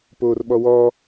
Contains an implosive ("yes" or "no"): yes